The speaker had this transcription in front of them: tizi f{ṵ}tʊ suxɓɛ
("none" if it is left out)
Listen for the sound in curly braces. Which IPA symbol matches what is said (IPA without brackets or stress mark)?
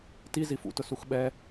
ṵ